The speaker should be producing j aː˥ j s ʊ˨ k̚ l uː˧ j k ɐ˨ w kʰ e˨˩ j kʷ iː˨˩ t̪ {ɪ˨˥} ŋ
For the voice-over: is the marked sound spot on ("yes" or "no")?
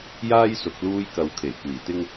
no